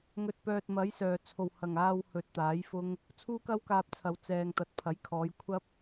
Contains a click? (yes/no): no